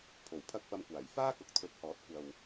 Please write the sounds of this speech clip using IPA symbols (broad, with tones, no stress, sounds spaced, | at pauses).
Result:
pʰ o˨˩ w pʰ ɐ˥ k̚ p ɐ˧ m kʷ aː˨˩ j f aː˥ k ʊ˨ k̚ t̪ʰ ɵ˨˥ t̚ h ɔː˨˥ t̚ kʷ ɐ˨ w